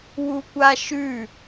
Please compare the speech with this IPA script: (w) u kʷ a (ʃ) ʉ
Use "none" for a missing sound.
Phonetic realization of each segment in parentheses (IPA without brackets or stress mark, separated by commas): w, ʃ